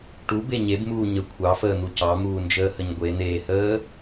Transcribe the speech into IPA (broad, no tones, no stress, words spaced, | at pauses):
ʈube ɲebmuː ɲə kʷʰɑfəːn̪u cɑmuːnd͡ʒəːhəɲ ɡʷen̪eːhəː